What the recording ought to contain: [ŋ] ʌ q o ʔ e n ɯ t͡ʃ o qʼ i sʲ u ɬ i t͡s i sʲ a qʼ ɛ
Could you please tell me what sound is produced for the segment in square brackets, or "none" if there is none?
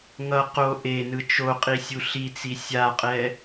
ŋ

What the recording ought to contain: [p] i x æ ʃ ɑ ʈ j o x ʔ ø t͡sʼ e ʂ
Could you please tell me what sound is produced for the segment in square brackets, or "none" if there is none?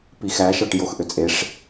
p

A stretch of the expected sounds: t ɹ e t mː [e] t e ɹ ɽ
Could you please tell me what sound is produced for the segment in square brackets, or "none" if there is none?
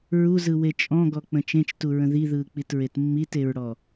i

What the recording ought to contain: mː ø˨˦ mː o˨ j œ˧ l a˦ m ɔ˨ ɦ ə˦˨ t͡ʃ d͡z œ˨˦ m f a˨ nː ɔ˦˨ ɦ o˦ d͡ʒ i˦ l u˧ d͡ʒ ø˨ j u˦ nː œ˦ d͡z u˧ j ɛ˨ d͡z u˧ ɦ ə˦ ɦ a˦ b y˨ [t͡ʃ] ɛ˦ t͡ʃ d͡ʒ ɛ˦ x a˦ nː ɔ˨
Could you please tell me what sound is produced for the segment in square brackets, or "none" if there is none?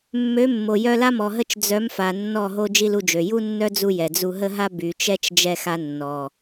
t͡ʃ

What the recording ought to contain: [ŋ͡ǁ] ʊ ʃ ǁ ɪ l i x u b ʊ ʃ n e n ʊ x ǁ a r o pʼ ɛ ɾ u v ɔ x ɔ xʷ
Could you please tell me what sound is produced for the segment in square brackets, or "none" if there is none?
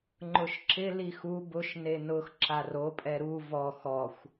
ŋ͡ǃ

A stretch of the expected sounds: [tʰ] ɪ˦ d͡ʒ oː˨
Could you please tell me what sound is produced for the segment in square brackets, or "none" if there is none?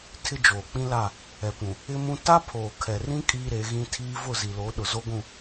tʰ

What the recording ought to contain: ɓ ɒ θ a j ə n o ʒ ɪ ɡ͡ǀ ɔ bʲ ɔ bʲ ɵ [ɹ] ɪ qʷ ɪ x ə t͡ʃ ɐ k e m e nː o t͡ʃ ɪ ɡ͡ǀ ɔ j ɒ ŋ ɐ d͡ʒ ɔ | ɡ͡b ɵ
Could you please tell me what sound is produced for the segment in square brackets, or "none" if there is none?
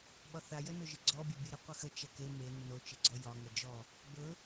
ɾ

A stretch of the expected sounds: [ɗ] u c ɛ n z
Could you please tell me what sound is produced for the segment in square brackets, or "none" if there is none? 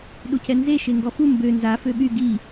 ɗ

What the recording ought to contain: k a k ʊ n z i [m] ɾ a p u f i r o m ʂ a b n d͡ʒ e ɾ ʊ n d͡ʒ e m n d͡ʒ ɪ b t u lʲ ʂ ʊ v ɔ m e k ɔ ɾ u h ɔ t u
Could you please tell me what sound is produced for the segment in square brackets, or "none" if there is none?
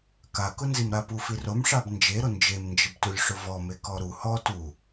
m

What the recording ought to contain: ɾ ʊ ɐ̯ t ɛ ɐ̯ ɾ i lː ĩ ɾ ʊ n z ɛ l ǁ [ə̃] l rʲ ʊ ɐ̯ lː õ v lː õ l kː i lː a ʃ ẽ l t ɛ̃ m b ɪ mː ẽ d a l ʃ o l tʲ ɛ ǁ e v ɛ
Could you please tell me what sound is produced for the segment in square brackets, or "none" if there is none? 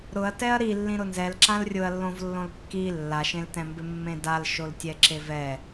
ã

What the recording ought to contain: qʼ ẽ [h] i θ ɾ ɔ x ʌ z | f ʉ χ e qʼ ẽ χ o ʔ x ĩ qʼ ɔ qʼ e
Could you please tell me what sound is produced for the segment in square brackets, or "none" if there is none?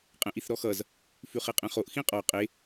ʔ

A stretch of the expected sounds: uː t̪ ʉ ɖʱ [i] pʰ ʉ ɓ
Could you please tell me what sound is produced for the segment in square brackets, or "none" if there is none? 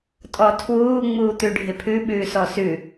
ɪ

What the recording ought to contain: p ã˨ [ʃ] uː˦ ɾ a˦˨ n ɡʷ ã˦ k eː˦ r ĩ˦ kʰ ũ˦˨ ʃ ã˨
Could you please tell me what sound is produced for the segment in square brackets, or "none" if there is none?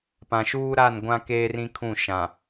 ʃ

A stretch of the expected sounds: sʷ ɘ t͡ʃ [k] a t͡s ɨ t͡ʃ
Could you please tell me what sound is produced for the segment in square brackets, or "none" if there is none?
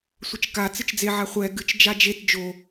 k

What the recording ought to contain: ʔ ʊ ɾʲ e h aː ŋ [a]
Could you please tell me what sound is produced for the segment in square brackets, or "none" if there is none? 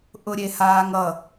ʌ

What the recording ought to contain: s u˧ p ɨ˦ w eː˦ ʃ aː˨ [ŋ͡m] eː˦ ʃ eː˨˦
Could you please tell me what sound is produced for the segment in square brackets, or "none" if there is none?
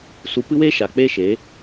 k͡p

